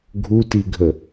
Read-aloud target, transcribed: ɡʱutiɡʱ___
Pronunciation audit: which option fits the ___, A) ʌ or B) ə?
B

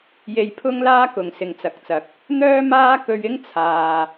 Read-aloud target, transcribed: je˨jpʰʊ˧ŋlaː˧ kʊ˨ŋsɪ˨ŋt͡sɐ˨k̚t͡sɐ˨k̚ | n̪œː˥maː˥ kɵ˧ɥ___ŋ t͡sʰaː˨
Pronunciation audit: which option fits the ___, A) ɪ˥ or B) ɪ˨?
A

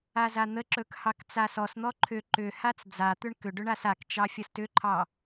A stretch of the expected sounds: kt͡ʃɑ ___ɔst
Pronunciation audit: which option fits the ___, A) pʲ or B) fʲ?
B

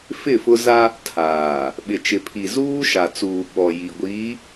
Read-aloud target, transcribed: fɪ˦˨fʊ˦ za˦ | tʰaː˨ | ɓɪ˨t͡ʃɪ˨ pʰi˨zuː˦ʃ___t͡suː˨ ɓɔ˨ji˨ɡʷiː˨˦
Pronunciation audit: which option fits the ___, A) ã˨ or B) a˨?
B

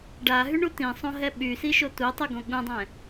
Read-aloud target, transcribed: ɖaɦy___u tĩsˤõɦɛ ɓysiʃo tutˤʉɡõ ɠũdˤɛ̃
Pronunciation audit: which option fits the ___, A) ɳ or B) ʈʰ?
A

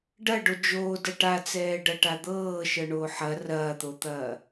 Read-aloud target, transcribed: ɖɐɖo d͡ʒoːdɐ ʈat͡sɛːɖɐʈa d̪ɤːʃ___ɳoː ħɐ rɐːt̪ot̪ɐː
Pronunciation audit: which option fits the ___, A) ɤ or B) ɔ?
A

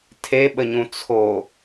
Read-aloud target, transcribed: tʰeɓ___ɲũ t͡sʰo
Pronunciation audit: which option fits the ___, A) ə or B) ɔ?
A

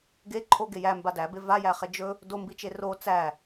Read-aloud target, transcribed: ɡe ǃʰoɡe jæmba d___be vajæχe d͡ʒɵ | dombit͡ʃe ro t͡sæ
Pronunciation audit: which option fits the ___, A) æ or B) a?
A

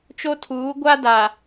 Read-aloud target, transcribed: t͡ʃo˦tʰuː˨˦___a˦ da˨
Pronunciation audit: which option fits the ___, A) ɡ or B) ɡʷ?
B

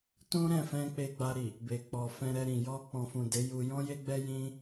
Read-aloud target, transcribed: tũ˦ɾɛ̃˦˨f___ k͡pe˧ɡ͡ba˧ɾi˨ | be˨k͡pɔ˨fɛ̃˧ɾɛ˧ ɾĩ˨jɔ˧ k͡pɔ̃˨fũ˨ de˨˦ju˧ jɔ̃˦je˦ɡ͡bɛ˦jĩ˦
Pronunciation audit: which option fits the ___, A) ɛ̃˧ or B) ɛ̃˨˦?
A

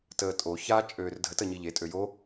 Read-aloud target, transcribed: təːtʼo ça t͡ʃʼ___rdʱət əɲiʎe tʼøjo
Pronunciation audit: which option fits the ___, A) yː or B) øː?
B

